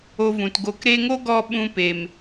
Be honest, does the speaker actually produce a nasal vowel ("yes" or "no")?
yes